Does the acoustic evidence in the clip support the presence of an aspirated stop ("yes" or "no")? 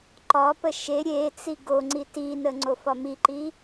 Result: no